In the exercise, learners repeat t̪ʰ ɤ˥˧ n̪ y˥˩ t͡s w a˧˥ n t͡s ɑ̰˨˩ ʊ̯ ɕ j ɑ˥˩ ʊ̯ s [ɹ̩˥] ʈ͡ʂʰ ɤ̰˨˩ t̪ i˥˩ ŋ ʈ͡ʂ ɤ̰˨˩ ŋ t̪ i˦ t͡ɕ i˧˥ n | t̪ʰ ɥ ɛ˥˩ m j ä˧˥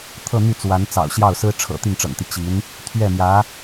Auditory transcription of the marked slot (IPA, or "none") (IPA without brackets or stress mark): ɹ̩˥